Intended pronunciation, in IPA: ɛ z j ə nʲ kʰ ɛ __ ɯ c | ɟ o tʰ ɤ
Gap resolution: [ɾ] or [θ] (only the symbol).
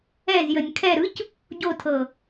ɾ